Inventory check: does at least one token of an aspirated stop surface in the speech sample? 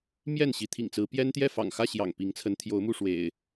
yes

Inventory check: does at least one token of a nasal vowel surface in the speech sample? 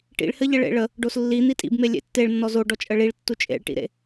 no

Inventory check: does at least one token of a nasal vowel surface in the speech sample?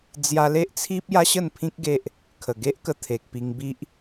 yes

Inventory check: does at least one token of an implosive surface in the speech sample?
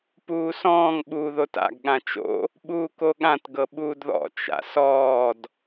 yes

